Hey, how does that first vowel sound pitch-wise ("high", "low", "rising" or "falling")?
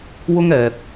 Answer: high